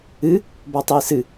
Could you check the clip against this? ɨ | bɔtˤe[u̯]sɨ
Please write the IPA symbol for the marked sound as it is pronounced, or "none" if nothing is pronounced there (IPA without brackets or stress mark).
i̯